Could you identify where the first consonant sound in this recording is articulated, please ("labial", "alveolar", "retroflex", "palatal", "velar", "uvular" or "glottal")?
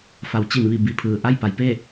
labial